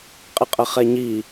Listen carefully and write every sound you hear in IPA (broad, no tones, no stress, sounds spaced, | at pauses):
qʼ ɪ qʼ ə χ ɛ ɲ i